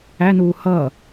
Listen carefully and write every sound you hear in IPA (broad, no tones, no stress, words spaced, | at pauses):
ænuː hʌː